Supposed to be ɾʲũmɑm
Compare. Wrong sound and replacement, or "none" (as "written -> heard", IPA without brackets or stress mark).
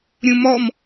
ɑ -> ɔ